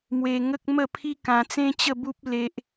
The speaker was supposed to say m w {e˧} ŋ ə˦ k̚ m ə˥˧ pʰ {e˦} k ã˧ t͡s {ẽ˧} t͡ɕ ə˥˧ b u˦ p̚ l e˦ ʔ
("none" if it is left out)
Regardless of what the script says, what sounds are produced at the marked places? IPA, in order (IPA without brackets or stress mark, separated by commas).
e˧, i˦, ẽ˦